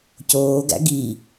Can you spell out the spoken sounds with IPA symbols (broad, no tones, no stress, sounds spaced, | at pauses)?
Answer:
c oː ɡ æ̰ ɡ i